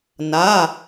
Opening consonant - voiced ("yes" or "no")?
yes